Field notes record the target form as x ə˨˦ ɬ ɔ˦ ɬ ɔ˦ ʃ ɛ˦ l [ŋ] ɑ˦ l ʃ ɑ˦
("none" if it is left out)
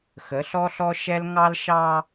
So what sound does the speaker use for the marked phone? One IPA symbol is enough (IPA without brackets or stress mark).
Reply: ŋ